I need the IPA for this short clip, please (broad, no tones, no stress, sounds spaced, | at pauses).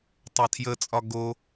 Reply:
tˤ a tʰ j ə t͡sʼ ɒ ɡ o